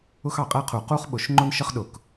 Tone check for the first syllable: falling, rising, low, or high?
high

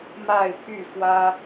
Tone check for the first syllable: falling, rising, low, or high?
falling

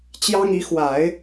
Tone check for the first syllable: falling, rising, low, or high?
high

